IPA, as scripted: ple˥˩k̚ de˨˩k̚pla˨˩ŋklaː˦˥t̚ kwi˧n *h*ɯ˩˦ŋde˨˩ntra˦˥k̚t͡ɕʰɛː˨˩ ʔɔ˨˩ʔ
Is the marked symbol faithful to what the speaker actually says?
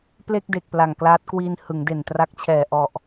yes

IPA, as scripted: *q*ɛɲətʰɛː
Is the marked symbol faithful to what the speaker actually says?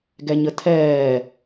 no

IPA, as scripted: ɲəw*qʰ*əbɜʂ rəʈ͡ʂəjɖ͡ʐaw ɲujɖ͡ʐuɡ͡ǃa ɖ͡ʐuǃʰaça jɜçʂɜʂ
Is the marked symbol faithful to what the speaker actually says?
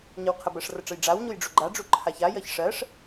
yes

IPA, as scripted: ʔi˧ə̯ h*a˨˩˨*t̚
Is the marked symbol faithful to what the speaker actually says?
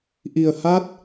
no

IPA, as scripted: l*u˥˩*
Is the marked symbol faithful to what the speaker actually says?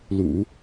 no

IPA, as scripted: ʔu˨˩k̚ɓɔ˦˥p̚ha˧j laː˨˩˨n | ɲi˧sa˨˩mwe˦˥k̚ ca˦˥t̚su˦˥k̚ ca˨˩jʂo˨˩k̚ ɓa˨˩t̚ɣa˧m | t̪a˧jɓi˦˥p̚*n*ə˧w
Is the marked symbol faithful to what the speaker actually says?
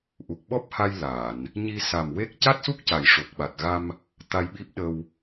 no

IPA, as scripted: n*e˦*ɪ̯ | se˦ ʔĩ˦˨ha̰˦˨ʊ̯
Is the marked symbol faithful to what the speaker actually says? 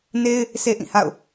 yes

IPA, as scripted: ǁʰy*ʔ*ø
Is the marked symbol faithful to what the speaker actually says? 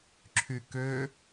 no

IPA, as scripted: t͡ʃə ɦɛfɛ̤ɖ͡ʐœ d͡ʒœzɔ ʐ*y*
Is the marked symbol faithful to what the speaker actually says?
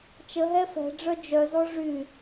yes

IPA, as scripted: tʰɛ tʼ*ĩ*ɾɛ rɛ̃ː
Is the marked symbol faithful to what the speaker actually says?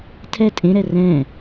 no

